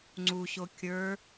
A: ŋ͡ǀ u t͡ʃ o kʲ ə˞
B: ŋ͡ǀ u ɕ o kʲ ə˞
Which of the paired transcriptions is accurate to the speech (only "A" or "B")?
B